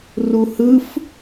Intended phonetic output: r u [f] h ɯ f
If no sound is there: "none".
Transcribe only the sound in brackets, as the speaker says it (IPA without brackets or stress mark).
none